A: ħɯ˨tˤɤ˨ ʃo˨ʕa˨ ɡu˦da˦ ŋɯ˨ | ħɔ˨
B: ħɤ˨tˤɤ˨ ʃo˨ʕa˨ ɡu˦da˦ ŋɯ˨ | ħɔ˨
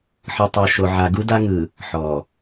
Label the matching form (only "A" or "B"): A